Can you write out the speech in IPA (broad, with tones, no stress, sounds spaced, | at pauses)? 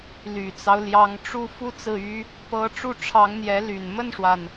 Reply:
l y˨˩ t͡s ɑ˦ ʊ̯ l j ɑ˧˥ ŋ ʈ͡ʂ u˥˧ f u˥˧ t͡s ɹ̩˥˩ y˥ | p ɤ˧˥ ʈ͡ʂ u˥˩ ʈ͡ʂʰ ɑ˧˥ ŋ n̪ j ɛ˧˥ l y˨˩ n m ə˥˩ n ʂ w a˩ n